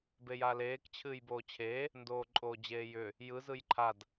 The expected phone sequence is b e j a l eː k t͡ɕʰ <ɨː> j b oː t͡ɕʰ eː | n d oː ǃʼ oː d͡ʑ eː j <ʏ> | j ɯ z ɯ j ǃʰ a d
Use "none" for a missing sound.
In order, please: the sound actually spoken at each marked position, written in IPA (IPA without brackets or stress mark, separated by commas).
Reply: ɨː, ʏ